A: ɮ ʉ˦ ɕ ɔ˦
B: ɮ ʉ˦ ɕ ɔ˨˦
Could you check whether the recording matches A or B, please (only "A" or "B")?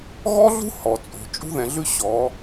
B